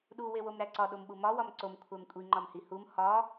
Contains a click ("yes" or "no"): yes